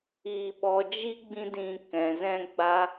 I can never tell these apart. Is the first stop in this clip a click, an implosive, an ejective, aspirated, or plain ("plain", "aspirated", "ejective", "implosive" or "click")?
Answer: implosive